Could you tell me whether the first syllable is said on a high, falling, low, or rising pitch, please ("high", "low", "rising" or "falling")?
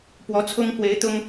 rising